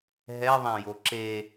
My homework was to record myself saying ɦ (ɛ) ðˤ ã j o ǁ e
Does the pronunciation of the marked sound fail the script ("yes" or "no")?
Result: no